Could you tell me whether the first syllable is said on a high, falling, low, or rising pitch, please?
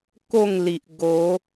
falling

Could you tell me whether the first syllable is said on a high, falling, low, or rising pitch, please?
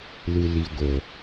low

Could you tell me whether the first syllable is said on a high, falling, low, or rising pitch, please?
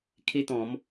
high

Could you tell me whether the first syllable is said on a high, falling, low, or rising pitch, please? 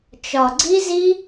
low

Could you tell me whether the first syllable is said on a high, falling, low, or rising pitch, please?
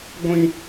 high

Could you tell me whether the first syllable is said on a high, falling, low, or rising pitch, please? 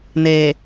low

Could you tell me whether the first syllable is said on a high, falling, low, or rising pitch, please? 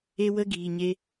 high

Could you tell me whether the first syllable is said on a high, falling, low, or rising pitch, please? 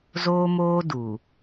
high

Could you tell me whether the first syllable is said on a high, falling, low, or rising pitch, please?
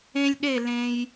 high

